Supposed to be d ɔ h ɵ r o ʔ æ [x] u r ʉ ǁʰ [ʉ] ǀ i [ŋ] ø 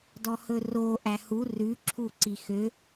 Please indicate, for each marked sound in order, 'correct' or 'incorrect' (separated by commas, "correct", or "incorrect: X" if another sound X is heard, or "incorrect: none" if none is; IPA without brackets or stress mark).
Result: incorrect: h, incorrect: u, incorrect: x